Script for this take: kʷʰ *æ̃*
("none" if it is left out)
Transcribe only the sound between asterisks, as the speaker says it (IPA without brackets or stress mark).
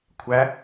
æ